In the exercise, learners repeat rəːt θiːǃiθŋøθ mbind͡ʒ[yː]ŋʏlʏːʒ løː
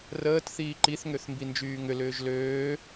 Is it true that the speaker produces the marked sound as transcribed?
yes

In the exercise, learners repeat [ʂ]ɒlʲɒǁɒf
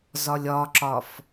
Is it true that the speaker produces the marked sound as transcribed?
no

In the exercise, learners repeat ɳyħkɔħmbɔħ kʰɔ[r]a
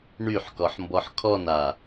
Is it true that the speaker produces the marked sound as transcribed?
no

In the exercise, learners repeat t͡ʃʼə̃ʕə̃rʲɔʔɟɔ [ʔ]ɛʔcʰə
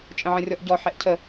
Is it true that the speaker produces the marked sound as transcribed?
no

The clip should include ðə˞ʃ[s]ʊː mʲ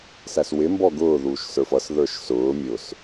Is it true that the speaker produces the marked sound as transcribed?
yes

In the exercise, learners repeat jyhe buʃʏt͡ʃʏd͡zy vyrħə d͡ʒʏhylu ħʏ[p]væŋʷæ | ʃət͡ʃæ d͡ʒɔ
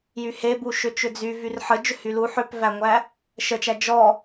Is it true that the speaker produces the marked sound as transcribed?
yes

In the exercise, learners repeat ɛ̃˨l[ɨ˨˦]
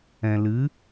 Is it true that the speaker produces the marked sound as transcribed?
yes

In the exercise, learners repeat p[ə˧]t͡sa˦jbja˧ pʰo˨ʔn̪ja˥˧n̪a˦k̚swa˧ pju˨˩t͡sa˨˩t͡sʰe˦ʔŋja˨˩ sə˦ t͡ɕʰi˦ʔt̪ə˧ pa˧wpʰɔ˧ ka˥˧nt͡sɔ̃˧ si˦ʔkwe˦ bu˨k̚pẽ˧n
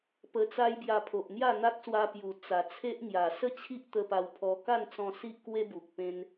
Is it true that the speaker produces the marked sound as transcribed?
yes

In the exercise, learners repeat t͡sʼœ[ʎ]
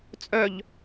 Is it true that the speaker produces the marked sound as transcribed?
yes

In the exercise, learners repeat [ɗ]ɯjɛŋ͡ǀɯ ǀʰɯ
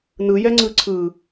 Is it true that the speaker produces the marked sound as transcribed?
no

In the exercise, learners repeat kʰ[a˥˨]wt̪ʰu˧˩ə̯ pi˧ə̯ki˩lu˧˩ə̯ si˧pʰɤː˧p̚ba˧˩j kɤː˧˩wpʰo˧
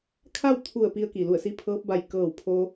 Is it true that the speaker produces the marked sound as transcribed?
yes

